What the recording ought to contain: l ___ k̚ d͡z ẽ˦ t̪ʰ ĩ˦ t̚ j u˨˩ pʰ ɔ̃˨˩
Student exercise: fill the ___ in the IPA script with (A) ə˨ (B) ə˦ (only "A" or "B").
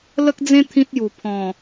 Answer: B